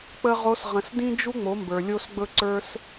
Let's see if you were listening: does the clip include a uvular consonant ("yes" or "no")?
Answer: yes